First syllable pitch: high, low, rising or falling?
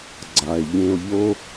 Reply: low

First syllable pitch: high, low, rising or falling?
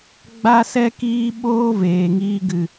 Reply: high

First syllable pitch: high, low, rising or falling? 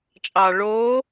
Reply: low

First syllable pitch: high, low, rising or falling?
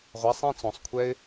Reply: rising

